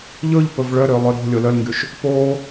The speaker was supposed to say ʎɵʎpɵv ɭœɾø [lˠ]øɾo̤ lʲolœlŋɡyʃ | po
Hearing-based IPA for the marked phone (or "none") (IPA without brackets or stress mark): lˠ